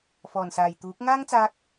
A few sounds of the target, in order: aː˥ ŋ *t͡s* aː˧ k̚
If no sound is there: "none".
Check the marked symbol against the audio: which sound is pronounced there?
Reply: t͡s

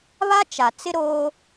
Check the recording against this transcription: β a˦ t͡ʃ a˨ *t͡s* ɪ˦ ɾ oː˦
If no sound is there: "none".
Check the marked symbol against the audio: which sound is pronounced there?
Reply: t͡s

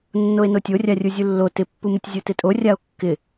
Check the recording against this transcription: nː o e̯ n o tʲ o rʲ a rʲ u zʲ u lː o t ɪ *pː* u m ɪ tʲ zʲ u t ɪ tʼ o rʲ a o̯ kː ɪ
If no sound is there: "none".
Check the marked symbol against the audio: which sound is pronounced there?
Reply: pː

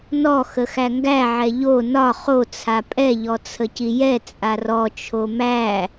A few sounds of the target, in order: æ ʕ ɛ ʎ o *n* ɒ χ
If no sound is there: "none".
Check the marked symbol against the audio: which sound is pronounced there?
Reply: n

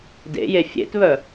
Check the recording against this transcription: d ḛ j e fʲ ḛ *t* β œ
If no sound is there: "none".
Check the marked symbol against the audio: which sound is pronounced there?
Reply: t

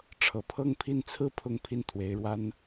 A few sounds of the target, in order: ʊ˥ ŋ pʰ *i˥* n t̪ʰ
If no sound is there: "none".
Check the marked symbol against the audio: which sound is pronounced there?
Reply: i˥˩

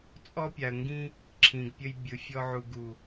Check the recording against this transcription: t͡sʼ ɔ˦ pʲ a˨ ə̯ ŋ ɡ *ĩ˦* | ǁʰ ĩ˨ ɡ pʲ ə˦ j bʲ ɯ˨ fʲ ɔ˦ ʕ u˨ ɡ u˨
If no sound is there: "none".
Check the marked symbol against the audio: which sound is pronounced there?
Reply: ĩ˦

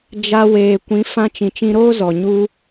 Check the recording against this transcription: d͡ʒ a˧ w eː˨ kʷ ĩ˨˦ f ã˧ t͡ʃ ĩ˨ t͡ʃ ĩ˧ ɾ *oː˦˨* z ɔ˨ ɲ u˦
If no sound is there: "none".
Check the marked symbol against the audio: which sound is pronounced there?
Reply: oː˦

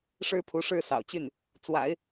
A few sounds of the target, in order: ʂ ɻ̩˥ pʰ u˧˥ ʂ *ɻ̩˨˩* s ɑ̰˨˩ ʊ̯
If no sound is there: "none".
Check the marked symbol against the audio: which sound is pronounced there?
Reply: ɻ̩˥˩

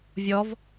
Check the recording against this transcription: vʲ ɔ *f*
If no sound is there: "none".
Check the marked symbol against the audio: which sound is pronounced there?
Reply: v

